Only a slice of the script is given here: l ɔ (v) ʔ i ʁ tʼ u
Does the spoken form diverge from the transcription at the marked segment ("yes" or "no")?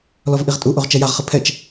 no